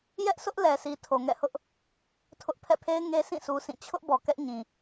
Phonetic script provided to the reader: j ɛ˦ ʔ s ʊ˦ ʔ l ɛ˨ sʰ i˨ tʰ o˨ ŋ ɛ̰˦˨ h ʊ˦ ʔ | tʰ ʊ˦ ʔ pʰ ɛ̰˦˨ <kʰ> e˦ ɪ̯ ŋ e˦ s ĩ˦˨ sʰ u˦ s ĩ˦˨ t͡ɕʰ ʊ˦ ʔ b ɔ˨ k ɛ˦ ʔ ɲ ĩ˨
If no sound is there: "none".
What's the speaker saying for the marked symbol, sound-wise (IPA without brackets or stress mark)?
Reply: pʰ